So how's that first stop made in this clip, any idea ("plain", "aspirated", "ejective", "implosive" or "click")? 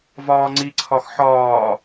click